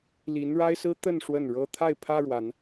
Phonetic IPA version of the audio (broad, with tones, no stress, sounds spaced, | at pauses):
l i˨˦ n ɻ a˦ ɪ̯ s ɹ̩˦ t̪ ə˥˨ n ʂ w ə˥˨ n ɻ ɤ˦ t̪ʰ a˥˨ ɪ̯ pʰ ä˦ ɻ w a˨˦ n